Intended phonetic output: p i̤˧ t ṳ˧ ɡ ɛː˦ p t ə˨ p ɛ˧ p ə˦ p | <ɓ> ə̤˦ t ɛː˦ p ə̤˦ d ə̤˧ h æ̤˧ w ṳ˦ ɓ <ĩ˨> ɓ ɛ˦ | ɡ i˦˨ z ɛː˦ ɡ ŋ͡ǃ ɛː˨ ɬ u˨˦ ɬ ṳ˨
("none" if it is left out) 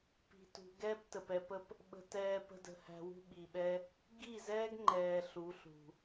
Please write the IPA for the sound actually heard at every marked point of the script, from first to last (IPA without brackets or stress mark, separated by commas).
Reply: ɓ, i˨